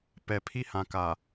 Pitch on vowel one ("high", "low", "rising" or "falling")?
low